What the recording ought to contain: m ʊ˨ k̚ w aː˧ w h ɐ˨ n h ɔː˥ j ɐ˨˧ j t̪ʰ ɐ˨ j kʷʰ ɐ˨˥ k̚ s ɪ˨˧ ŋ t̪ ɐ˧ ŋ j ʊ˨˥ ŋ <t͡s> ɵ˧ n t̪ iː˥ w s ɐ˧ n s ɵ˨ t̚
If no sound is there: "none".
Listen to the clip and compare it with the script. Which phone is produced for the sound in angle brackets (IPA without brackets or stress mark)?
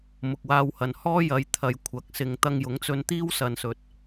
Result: t͡s